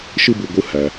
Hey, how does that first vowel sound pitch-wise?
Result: high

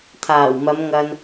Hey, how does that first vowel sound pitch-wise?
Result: low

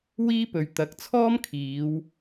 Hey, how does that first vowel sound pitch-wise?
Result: high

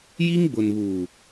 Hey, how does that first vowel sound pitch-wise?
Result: high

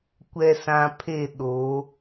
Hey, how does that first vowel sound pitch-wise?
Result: low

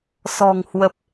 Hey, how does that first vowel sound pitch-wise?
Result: low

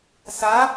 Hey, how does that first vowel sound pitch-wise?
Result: rising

